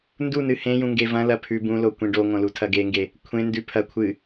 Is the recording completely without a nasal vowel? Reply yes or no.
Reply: no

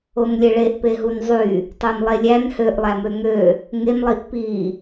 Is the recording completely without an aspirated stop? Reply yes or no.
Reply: yes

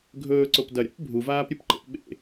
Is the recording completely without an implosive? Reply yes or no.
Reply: no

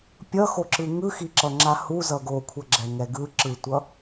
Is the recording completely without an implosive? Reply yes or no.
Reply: yes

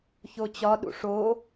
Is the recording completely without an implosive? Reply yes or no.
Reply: no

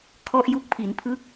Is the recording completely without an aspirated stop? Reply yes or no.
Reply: no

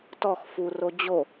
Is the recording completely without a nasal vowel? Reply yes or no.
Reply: yes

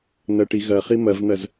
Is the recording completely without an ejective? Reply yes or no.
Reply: yes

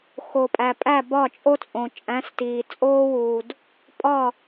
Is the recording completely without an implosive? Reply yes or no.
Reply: yes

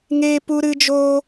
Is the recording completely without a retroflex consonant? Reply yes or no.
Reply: yes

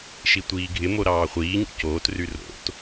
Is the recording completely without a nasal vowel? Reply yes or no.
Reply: yes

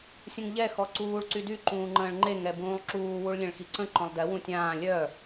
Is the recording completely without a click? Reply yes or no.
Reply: no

